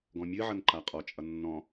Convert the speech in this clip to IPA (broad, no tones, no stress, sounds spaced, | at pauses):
ɡ ɔ̃ mʲ ɨ ʕ ʌ n ǃ a qʼ ɔ t͡ʃʼ ʌ nː ɔ̃